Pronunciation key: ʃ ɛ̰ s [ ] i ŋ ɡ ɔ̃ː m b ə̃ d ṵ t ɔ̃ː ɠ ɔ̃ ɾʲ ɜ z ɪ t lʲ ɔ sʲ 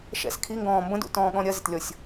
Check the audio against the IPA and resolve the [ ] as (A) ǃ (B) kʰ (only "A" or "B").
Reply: B